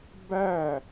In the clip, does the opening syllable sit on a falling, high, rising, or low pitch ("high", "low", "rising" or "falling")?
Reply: falling